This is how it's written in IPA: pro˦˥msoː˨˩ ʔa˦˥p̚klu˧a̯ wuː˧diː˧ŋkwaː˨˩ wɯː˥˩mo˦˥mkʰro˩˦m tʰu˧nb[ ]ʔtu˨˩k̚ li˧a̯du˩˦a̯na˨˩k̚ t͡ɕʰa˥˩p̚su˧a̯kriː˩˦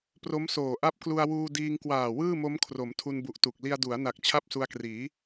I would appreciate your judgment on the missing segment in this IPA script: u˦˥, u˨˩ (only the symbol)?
u˨˩